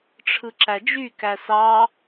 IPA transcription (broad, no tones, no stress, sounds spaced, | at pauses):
ʈ͡ʂʰ ɯ ǁ æ d͡ʒ y k æ s ɑ